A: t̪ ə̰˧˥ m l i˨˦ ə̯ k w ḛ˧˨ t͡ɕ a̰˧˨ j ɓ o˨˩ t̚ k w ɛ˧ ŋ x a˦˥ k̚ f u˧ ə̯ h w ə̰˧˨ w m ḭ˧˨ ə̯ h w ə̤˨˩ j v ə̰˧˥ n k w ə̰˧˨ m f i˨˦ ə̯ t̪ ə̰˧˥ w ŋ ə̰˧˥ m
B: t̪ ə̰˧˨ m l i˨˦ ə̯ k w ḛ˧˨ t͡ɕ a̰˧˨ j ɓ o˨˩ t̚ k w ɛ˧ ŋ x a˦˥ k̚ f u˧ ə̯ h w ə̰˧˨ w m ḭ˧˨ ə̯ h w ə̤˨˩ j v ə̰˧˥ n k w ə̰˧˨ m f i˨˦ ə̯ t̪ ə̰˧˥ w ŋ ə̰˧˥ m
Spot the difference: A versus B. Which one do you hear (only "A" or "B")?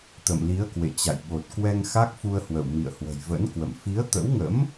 B